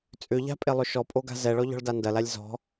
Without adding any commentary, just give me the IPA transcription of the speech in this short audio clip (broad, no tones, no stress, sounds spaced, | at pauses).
t͡sʼ ʏ ʎ a̤ pʼ e lˠ ʏ ʃ ɔ pʼ o ɡ a̤ z ɛ ɭ ɔ ʎ ɔ̤ ɭ d a n d ɐ l a lʲ z ɔ̤